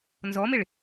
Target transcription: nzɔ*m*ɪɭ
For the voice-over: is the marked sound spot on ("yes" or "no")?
yes